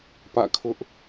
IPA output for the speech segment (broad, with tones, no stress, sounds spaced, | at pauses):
p ä̰˦˨ kʰ ʊ˦ ʔ